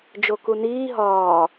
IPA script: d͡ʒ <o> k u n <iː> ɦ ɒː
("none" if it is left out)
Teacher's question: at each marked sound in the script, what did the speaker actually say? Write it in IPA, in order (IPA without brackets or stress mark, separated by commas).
o, iː